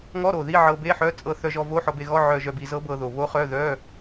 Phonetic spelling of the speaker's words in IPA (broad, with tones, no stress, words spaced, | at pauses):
ŋɔ˧˥˧ɾo˨˩ ði˧˥˧ʕɤ˧be˧˥˧ħœ˧˥˧ t͡sʼɤ˧θœ˧ʒɔ˧ vo˧˥˧ħɔ˧be˧ɣɔ˧˥˧ ʕœ˧ʒœ˧bi˧ zɤ˧˥bɤ˧ðo˨˩ βo˧˥χœ˧˥˧ðœ˧˥˧